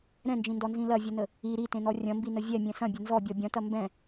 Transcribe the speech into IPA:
ɾ ɛ̃ n d͡ʒ ĩ n d ɔ n z ĩ l ɐ vʲ ə n ə | i ɾ i t ẽ n ɔ rʲ ɐ̃ m b i n ə vʲ ɛ mʲ ɛ̃ s ɐ̃ bʲ ɐ n z ɔ bʲ ɔ bʲ ɐ̃ t ɐ m b ɛ̃

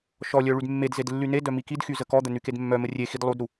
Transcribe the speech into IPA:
ʃ ɔ lʲ œ ɭ y d mː e d z e d lː y n e d œ m i k i d x y z ə k ɔ d̪ ə n y k e d mː œ m ə rʲ e x i d lˠ u d ɾ u

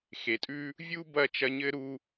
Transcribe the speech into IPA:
x e˩ tʼ ʉ˥ | vʲ u˦ b ɐ˥ t͡ʃ ɐ˦ ɲ ɘ˥ ɾ u˥

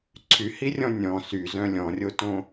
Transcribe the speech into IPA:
ǀʰ y h i rʲ ɔ̃ nʲ ɔ̃ s y z œ̃ lʲ ɔ̃ rʲ o t õ

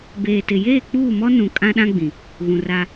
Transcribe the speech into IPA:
b eː˨ t ɪ˨ j eː˦˨ k͡p uː˦˨ m ɔ˦ n ũ˨ kʼ ã˦ ɗ ã˦ ɡ͡b ĩ˨ | ɣ ũ˨ r a˦

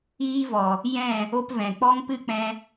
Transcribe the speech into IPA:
iː˦ v ɔ˨ | j ɛ̃˦˨ | o˦ p v ɛ̃˨ k͡p ɔ˦ ŋ p ɨ˦ k͡p ɛ̃˧

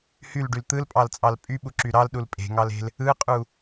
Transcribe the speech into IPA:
h y l ɖ y l t̪ ɯ l pʼ ɑ l t͡sʼ ɑ l pʼ y ɓ u ǁ y ɾ ɑ l ɗ u l pʼ e̤ ŋ ɑ l e̤ l | ɯ qʼ u

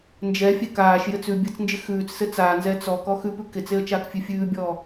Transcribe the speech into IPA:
n d͡ʒ ɛ fʲ ɛ k aː ʃ j ɘ t͡s ʉ bʲ ɘ t͡s n d͡ʒ ɪ x ʉː t͡s s ɘ t͡s aː n z ɛ t͡s ɔ k ɔ x ʉ p ʉ k ɪ t͡s e ə̯ t͡ʃ aː k fʲ ʉ fʲ ʉː bʲ ɔː

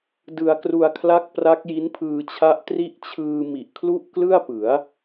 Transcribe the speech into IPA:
d ɯ˧ a̯ k r u˧ a̯ kʰ l a˦˥ k̚ p r a˦˥ k̚ j i˦˥ n pʰ ɯː˧ t͡ɕʰ a˦˥ ʔ t r i˦˥ ʔ t͡ɕʰ ɯː˧ m i˨˩ ʔ kʰ l u˥˩ ʔ k l ɯ˥˩ a̯ p ɯ˩˦ a̯

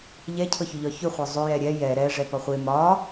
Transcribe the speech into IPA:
ʎ ɛ cʰ ɤ ç ʏ ʎ ɒ ç ʏ χʷ ɤ zˤ ʏ j ɛ ɾʲ ɛ j ɛ ɾ ɛ ʐ ɛ p ɒ χʷ e m ɒ

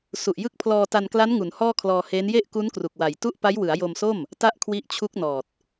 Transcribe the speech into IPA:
s u˨˩ ʔ j ɯ˦˥ k̚ pʰ l ɔː˧ t a˧ n k l a˦˥ n ŋ u˩˦ n h ɔː˥˩ kʰ l ɔː˧ h eː˦˥ n j e˥˩ ʔ k u˦˥ n k r u˨˩ k̚ w a˨˩ j t u˥˩ ʔ p a˦˥ j w ɯ˩˦ a̯ j o˧ m s o˥˩ m | t a˥˩ ʔ kʰ w i˦˥ ʔ t͡ɕʰ u˦˥ k̚ n ɔː˨˩ t̚

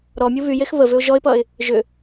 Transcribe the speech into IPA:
ɾ ɔ mʲ ɯ β y j e x β ə v ʏ ʊ̯ ʒ ɔ ɪ̯ p ʌ ɪ̯ | ʒ ʏ

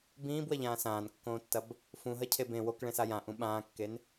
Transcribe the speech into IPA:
b ĩː b w ɐ ʎ ãː s ãː n kː õː tː ɐ b | f ũ ɦ ɐ cʰ e b ẽ w o k ɭ ẽ s a j ã ʔ ũ ɓ ãː kː e n

